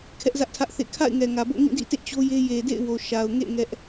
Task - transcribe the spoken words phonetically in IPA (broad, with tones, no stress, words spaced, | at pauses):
kʰɛ˦ʔzä˦ʔtʰä˦ʔθḛ˦˨ kʰa̰˦˨ɪ̯ŋɛ˨ŋä˨bo̰˦˨ ŋĩ˦˨dḭ˦˨tḛ˦˨ t͡ɕo˦je˦ je˨dḛ˦˨ɪ̯ wo˨ ʃa˨ʊ̯ŋḛ˦˨ ŋɛ˦ʔ